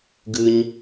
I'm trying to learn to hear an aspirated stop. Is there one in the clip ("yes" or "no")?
no